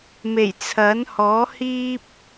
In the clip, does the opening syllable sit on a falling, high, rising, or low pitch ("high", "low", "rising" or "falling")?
low